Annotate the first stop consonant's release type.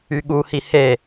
implosive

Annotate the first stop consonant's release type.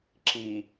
click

